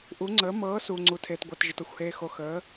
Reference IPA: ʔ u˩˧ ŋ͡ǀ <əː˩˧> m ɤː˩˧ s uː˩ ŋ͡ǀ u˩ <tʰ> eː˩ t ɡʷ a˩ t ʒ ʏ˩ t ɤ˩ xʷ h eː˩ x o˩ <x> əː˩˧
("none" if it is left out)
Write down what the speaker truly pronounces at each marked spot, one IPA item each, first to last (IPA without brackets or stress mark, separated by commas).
əː˩˧, tʰ, x